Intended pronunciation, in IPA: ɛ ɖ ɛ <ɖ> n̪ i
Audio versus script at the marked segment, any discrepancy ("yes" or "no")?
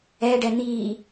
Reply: yes